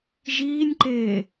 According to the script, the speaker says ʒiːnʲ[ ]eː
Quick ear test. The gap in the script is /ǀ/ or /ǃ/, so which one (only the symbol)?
ǃ